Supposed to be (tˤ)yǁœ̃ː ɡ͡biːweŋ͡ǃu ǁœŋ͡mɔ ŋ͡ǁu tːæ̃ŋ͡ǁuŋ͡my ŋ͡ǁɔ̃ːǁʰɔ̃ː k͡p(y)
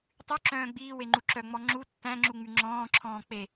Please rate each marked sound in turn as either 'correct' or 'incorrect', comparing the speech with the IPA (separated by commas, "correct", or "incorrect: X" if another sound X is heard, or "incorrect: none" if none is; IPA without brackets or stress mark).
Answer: correct, incorrect: e